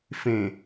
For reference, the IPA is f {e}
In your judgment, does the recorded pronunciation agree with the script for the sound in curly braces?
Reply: no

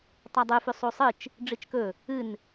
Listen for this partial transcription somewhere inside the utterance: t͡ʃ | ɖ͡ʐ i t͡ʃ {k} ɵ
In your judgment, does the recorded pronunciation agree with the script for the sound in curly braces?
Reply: yes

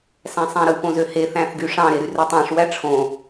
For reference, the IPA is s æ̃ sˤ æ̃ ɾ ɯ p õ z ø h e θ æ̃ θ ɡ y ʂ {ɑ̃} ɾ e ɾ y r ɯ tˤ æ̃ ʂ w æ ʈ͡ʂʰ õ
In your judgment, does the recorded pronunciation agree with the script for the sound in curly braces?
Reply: yes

